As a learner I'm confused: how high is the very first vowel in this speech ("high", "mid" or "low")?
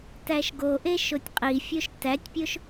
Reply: low